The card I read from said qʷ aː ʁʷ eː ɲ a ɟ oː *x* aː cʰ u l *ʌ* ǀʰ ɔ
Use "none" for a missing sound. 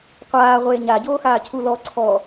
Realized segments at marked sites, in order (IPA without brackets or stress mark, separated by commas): x, ɔ